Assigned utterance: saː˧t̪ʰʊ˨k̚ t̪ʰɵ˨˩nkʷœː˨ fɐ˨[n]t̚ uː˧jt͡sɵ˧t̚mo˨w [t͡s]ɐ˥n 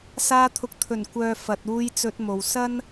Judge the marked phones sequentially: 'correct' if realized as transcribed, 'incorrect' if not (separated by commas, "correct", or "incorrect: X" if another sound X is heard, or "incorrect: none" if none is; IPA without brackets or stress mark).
incorrect: none, incorrect: s